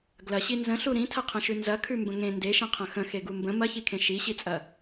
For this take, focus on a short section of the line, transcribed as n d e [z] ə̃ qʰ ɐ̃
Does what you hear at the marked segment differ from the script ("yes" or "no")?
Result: yes